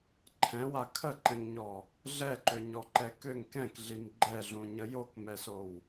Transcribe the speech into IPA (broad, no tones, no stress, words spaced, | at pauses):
ǃʰɛ̃wa kʰəǃɛ̃ŋɲɔ | ɮɛǃøɲɔǃɛ køŋ kɛ̃kɮim ɡ͡ǃɛɮũɲə jokmɛsow